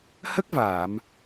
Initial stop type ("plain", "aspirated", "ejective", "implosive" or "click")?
plain